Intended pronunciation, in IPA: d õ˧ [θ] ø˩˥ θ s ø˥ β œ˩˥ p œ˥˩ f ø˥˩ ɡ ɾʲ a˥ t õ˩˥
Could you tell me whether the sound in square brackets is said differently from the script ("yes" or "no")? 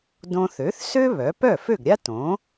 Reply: no